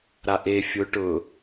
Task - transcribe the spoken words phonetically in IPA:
ɾaʔe fʲʊ ʈʊ

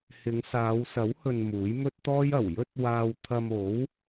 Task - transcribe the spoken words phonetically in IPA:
hɪ˨˧ŋsaː˨˧wsɐ˨˥whɵ˨n muː˨˥jmɵ˥t̚t̪ɔː˥j ɐ˨˩wjɵ˥t̚ waː˧w t̪ʰɐ˧mo˨˥w

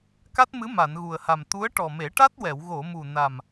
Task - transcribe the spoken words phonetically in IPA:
ka˦˥t̚mɨ˧˥ ma˨˩˨nɣu˨˩ə̯ha˨˩m t̪u˧˥ə̯ ʈɔ˨˩me˨˩˦ʈa˦˥t̚wɛ˨˩˨w ɣo˨˩˨mu˨˩na˨˩m

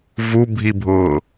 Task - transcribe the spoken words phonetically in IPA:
vubʱibʱʊː

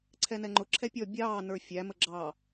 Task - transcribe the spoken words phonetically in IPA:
ǀʰɛnɛŋ͡ǃʊ ǁʰɛpʲɔ bʲɑː nə˞fʲæ məɡ͡ǁɑ

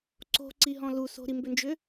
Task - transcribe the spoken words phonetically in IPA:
ǀo̤ǀiɦɔ̃ lu so̤ɾimbʏnd͡ʒʏ

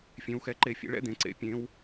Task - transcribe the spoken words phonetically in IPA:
fʲẽ˩˧wxɛ˩˧ ǃe˧˩˧fʲḛ˩˧ɭɛ̰˥˧ d̪ẽ˩ǀḛ˩˧ pʲẽ˩˧w

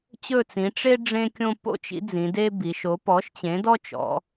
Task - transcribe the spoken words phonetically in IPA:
t͡ɕɵ˦˨t͡sĩ˩˧ ʈ͡ʂe˥ ɖ͡ʐẽ˥kʲõ˥ po̰˥t͡ʃḭ˨˥d͡zĩ˩˧ de˥bi˩˧ʃo˨˥ pɔ˨˥ʃt͡ɕẽ˨˥ dɔ˥t͡ʃɔ̰˩˧

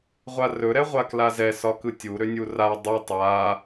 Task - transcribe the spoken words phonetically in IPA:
ʁʷarɵ ɾɛʁʷaklazɛ sɒkɯtʲu ɾønʲura dˤu tˤa

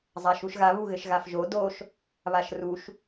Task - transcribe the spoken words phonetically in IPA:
zˤaʃuʃɣa βuɣɘʃɣafʒo doʃ | βaʃruʃ

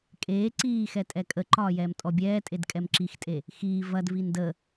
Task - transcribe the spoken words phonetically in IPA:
kʼeː ǀiːxɛ tʼɛkʼəǃɒːjɛːm tʼɔbʲɛːtʼed kʼɛmǁixtʼe | xiː vɐd vində

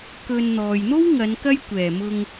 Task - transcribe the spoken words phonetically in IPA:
kɵ˧n n̪ɔː˨jn̪o˥wŋɐ˨˧n kɐ˥j kʷɛː˨˩mʊ˧ŋ

